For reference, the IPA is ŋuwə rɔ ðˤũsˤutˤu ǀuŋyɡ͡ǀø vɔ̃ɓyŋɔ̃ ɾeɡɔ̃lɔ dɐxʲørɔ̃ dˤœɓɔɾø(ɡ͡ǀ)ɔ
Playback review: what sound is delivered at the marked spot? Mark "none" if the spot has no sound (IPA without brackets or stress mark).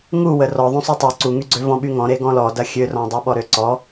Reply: ǀ